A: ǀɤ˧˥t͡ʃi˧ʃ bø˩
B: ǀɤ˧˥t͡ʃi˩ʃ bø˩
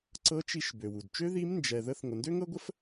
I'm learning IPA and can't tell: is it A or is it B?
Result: A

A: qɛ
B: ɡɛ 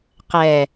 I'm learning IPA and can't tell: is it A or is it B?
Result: A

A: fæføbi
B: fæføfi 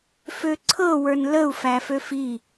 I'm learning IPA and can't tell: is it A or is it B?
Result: B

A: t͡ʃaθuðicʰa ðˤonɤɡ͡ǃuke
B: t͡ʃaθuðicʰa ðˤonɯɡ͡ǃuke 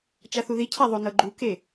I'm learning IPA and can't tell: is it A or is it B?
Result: A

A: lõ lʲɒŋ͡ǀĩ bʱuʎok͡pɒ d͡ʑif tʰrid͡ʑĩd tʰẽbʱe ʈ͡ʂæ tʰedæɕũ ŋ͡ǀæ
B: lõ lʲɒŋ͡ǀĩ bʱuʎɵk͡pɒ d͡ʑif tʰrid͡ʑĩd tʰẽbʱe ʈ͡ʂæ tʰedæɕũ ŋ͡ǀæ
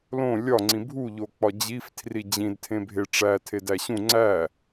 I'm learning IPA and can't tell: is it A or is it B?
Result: A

